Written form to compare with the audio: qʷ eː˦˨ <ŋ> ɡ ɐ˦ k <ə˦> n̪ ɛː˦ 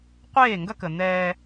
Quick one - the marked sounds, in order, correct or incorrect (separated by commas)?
correct, incorrect